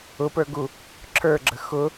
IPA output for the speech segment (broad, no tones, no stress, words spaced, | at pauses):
ʊpə˞ɡu | ǁʰə˞ɡ͡ǁə xʊ